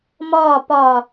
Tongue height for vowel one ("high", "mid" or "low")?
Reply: low